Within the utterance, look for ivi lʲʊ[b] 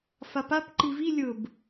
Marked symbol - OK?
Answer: yes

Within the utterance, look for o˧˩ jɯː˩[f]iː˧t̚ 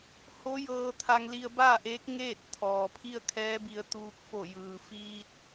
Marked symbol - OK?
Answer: yes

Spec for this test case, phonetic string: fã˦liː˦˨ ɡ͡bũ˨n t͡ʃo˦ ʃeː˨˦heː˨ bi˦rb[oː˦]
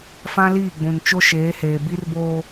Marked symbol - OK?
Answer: yes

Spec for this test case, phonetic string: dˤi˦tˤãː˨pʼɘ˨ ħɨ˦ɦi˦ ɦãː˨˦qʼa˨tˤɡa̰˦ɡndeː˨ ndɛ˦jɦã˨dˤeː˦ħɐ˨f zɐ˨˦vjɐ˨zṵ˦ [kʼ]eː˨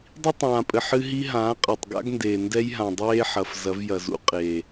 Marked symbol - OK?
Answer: no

